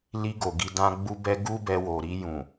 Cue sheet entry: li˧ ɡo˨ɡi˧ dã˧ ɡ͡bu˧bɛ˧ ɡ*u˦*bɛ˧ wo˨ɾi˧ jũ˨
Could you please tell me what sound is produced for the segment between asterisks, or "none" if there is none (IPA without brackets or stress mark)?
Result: u˦